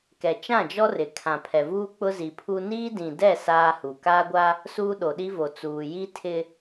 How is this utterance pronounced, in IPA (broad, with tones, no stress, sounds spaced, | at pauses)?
k ɛ˨ t͡ʃ ã˦˨ d͡ʒ ɔ˦ r ɪ˨ kʰ ã˨ pʰ ɛ˨ v uː˦ k͡p ʊ˦ z i˨ pʰ u˦ n iː˦ d ĩ˨ d ɛ˦˨ s aː˦ h u˨ k aː˦ ɡʷ a˦ | s uː˦ ɗ o˨ ɗ i˦ v o˨ t͡s uː˨ j i˦ tʰ ɪ˦